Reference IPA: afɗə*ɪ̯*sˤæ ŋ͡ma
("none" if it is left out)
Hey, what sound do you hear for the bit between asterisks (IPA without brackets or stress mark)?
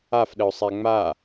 ʊ̯